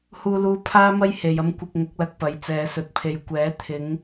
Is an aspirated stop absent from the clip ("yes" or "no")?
no